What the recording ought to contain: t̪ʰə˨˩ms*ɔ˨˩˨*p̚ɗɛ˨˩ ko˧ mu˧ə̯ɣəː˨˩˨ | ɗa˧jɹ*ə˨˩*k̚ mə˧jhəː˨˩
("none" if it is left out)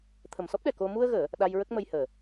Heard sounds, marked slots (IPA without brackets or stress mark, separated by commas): ɔ˦˥, ə˦˥